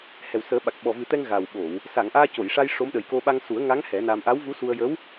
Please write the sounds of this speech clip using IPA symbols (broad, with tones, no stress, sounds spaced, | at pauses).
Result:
h ɛ˨˩ w s əː˨˩˦ ɓ a˨˩ k̚ ɓ ɔ˨˩ v ɨ˨˩˦ t̪ ɛ˧ ŋ ɣ a˨˩ w ɓ o˨˩˨ w | s a˨˩˨ ŋ ʔ aː˧ c o˨˩˨ j ʂ a˧ j ʂ o˧˥ m ɗ ə˨˩ j k o˧ ɓ a˧ ŋ s u˨˩˦ ə̯ ŋ a˧˥ ŋ h ɛ˨˩˦ n a˧ m ʔ a˧˥ w v u˧˥ s u˧ ə̯ j ə˧˥ w